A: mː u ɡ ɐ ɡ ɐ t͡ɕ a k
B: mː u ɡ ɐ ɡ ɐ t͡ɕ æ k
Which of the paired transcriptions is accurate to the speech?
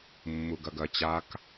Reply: A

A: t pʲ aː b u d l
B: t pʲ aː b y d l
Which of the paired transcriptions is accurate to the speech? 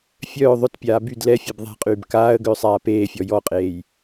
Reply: B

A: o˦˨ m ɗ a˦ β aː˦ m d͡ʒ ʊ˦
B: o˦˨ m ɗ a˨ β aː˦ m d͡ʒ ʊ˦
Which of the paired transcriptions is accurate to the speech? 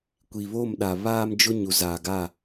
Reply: B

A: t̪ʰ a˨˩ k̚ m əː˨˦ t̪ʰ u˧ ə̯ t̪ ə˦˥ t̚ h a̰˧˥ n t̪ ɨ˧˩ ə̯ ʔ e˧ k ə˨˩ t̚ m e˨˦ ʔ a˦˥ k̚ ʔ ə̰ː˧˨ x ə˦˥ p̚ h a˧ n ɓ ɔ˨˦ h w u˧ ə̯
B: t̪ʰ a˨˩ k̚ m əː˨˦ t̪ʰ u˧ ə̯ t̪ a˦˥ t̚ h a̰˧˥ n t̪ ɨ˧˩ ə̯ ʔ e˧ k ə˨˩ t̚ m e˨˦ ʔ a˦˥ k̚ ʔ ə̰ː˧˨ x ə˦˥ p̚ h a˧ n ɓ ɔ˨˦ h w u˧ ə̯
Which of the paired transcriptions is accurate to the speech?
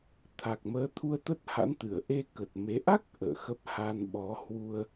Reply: A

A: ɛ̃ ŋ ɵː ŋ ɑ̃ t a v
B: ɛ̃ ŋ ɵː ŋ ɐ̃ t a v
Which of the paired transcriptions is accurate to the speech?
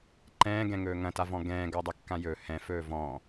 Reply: B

